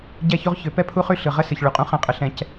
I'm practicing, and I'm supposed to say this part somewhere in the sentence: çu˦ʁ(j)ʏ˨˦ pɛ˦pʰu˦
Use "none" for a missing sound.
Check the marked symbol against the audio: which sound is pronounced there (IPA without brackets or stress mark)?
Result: ç